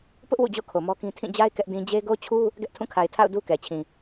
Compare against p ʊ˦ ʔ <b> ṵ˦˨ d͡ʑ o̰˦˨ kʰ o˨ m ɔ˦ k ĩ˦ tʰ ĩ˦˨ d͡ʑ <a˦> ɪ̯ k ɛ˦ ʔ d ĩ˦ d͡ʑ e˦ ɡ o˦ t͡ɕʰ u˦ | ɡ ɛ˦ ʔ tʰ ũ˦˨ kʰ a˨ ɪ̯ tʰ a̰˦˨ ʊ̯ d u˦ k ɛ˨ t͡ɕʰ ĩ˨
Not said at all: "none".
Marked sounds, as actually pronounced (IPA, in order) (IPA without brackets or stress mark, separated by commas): w, a˦